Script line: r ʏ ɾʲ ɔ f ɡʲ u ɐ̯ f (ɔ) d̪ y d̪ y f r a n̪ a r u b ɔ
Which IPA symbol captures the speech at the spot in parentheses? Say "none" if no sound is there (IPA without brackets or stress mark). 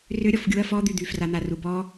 ɔ